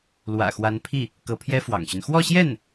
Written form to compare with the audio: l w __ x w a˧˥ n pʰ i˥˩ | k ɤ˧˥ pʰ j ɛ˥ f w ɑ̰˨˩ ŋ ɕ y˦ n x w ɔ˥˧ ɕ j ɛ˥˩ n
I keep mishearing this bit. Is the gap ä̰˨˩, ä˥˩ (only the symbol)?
ä̰˨˩